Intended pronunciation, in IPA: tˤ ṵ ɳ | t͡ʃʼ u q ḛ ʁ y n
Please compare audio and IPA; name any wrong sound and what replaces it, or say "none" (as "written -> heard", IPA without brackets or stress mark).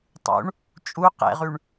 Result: n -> ɳ